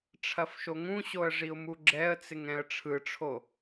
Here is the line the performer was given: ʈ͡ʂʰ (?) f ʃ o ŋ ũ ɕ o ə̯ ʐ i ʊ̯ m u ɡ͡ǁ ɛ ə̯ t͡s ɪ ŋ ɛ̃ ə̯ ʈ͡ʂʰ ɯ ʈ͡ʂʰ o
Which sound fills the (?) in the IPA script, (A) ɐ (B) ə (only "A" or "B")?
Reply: A